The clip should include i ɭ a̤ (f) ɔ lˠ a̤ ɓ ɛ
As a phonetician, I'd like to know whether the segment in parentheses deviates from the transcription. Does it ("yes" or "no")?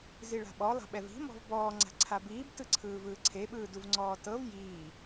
yes